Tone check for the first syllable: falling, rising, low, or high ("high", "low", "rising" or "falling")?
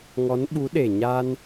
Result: rising